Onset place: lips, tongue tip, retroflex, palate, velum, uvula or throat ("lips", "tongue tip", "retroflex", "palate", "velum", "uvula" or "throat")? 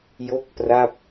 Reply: palate